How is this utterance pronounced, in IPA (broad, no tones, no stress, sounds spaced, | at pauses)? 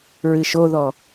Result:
ɹ ɨ ʃ o ð ɔ